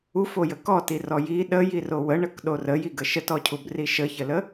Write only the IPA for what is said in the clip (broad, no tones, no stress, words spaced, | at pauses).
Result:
ufojə kɔtirɔ ji ɗəjirow əɳəkɗor əjiɡə ʃətɔcʰubri ʃəçələ